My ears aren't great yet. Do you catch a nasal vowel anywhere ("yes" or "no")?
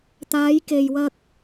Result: no